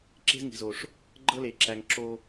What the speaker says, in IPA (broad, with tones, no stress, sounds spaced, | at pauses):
ǁ e̤˦ z ŋ i̤˨ z o˨ ʂ | ɡ͡ǃ ɤ˦ l e˨ ǁ æ˨ ŋ ǁ o˦